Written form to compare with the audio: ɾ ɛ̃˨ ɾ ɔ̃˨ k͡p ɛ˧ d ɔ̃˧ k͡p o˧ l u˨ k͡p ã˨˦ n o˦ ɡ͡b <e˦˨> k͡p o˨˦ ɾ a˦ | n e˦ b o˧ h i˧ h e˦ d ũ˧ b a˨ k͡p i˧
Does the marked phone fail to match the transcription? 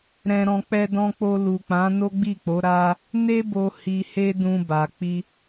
yes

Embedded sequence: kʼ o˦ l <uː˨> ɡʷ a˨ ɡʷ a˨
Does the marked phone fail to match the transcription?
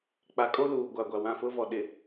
no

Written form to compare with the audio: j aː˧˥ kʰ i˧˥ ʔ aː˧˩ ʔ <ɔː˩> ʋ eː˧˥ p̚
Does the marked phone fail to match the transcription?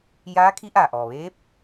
no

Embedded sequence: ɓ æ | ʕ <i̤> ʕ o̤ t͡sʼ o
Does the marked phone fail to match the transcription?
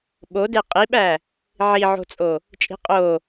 yes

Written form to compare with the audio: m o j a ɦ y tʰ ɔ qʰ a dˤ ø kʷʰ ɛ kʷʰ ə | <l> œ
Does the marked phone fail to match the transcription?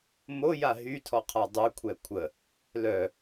no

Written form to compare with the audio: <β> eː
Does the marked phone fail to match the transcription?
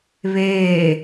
no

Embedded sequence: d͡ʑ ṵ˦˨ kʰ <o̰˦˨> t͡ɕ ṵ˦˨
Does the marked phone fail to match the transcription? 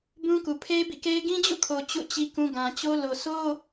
yes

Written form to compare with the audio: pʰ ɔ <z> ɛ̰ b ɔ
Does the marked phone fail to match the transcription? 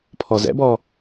no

